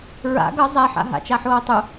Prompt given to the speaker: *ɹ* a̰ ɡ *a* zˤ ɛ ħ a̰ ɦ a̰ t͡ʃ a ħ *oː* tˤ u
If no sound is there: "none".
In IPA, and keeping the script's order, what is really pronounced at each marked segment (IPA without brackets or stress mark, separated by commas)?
ɹ, ʌ, oː